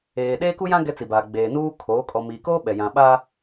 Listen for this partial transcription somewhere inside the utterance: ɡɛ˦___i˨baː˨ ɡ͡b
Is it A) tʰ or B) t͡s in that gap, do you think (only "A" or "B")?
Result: B